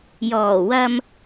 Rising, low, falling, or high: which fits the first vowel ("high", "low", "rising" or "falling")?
low